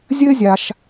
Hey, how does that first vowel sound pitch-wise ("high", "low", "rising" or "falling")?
high